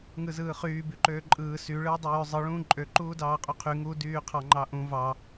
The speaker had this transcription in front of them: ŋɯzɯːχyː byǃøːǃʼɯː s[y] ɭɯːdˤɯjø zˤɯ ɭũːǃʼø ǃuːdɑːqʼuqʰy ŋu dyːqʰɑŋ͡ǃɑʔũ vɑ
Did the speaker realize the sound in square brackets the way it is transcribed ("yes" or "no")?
yes